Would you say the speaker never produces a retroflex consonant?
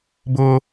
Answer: yes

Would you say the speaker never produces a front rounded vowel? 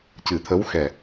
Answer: yes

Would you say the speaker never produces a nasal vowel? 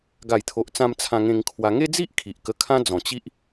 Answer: no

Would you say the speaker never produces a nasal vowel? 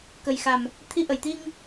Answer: yes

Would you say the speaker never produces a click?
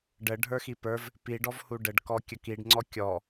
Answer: no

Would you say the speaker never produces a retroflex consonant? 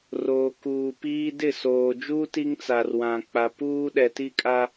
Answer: yes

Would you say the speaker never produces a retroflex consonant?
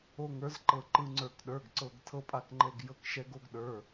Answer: yes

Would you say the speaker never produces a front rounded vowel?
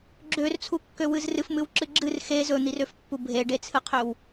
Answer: no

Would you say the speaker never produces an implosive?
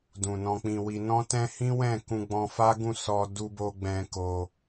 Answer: yes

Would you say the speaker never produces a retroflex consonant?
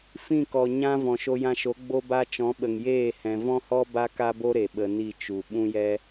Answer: yes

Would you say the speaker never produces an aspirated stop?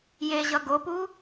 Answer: yes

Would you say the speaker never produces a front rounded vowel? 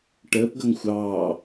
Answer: yes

